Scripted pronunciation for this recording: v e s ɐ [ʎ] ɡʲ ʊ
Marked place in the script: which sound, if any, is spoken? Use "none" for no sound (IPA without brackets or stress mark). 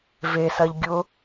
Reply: ʎ